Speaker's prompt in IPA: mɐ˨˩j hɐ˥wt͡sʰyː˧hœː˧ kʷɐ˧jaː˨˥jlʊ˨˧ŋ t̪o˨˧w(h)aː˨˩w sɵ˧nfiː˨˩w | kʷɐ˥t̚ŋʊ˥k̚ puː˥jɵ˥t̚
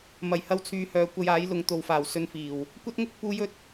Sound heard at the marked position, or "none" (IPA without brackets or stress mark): f